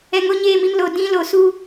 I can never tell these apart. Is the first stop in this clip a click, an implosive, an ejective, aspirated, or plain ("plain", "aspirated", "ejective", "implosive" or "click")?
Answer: plain